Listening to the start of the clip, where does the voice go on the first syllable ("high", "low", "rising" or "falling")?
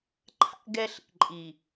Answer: high